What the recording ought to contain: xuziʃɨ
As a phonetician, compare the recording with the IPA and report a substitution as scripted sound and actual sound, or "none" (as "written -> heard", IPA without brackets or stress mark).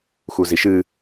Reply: none